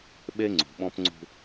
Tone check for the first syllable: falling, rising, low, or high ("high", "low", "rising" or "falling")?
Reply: high